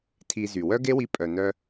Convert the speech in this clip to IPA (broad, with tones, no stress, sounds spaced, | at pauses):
tʰ i˧ z y˨ w œ˦ ɡ e˦ w i˧ pʼ œ˨ n œ˧